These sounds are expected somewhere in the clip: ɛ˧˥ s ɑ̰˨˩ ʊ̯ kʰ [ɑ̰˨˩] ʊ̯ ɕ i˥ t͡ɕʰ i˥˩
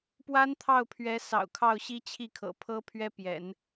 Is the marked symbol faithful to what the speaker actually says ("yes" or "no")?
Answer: no